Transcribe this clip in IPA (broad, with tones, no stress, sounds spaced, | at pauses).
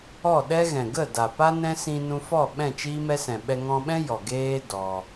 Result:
ɔ˦˨ ɗ ɛ˦ ɣ ɛ̃˨ ɡ ə˦˨ d a˨ p a˦ n ɛ̃˦ s ĩ˧ n ũ˧ f ɔ˦˨ ɓ ɛ̃˦˨ t͡ʃ iː˦ m ɛ˦ s ɛ̃˨ ɓ ɛ˧ ŋ ɔ̃˧ ɓ ɛ̃˦ j ɔ˨ ɡ eː˦ d ɔ˧